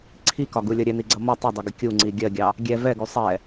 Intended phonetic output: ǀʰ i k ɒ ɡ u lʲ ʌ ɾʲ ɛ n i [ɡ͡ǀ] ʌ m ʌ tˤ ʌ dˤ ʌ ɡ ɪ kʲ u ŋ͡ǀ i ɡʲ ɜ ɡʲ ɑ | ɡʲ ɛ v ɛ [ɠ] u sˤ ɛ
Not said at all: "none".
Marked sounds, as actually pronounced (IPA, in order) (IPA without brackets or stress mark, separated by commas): ɡ͡ǀ, ɡ